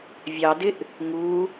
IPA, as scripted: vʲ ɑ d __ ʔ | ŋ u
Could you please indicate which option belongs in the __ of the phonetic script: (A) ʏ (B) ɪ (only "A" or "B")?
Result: B